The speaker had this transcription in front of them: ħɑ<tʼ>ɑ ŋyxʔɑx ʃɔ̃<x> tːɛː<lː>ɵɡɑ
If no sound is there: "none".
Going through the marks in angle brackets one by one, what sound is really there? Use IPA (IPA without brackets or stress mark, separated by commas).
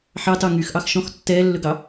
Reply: t, x, lː